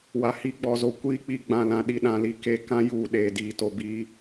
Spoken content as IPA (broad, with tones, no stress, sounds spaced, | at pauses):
w a˨ h i˨˦ ɡ͡b ɔ˨ z o˨ kʷ iː˦ k͡p i˨ ɡ͡b ã˨ l ã˨ ɗ i˨ ɗ ã˨ l i˨ k e˨ k ã˦ j uː˨ ɗ eː˨ d iː˨ t o˨ b iː˦